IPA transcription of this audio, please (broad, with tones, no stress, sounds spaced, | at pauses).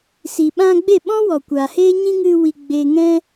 s i˨ ɓ ã˧ ɡ͡b e˦˨ ɓ ɔ̃˦ w ɔ˨ kʷ a˨ h eː˦ ɲ ĩ˦ ŋ ɨ˧ w i˨ ɡ͡b eː˧ ŋ ɛ̃˦